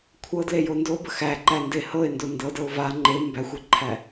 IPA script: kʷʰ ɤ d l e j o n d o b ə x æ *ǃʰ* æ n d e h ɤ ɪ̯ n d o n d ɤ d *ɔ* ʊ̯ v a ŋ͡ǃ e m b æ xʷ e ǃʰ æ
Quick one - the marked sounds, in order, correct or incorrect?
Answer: incorrect: ǃ, incorrect: ɤ

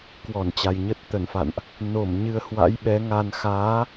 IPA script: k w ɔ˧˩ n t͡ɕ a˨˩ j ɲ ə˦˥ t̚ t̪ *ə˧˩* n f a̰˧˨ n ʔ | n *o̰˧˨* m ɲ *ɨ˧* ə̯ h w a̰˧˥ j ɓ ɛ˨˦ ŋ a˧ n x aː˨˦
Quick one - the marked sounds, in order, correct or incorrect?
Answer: correct, incorrect: o˧˩, correct

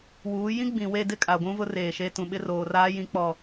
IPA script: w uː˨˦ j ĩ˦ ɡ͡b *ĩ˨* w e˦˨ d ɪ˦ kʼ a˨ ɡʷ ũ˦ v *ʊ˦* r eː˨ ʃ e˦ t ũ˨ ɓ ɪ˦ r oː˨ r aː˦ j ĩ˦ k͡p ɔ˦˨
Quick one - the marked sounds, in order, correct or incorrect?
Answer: correct, correct

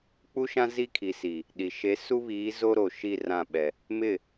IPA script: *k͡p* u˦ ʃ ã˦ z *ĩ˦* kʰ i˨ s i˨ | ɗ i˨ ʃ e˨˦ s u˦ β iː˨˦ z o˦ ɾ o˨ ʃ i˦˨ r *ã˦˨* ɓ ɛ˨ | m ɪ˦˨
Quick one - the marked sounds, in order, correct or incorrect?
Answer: correct, incorrect: i˦, correct

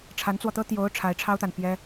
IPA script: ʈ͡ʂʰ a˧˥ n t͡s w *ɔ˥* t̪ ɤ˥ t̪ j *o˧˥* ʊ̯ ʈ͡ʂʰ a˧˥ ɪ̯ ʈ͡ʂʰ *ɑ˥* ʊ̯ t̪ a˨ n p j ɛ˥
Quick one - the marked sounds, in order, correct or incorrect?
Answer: incorrect: ɔ˧, correct, correct

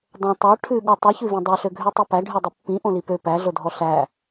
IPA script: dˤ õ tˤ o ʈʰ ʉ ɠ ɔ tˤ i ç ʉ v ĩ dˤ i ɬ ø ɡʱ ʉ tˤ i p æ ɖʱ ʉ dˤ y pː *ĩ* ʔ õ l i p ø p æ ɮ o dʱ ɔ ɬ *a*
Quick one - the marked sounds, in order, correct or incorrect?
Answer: correct, incorrect: æ

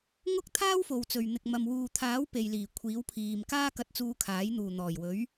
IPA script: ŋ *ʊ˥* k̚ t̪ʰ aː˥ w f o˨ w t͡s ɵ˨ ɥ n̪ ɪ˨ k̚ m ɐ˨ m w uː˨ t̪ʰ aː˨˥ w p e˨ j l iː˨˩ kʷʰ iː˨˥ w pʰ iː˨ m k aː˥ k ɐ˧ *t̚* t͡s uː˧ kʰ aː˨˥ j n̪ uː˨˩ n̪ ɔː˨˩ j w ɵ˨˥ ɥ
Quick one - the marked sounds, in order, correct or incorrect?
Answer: correct, correct

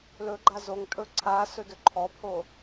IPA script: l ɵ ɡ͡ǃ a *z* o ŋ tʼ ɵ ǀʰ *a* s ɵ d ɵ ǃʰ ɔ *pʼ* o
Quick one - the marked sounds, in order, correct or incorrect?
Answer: correct, correct, incorrect: pʰ

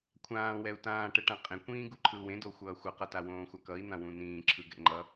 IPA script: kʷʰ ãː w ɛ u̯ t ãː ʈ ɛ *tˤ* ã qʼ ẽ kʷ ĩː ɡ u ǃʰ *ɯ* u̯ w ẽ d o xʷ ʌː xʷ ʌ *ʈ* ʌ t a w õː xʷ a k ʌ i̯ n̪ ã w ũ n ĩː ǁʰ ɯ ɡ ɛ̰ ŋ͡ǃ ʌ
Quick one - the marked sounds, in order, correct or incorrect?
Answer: incorrect: ʈ, correct, incorrect: q

